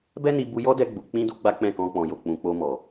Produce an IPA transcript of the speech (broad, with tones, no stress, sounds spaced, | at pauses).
b ɛ˦ n i˧ b u˧ j ɔ˦ d ɛ˧ ɡ͡b u˨ k͡p ĩ˧ d u˦ ɡ͡b a˦ k͡p ɛ̃˦˨ k ɔ̃˧ k͡p ɔ̃˨ j o˨ k͡p ũ˨ k͡p o˧ m ɔ˨